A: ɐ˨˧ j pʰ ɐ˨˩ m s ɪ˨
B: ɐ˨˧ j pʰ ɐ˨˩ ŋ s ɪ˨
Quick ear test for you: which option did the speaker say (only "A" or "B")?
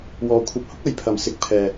A